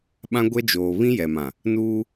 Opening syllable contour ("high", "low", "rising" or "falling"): high